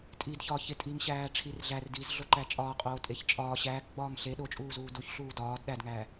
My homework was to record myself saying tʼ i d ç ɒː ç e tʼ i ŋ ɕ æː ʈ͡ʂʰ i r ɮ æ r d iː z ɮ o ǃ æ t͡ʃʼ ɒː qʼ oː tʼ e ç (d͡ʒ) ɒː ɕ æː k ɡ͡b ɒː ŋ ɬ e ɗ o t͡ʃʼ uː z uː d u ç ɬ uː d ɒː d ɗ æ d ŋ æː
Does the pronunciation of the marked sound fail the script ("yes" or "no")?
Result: yes